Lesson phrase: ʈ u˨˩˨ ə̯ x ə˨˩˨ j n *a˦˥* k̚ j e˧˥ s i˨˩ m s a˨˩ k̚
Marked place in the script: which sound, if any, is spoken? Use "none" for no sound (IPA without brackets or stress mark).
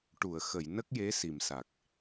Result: ə˦˥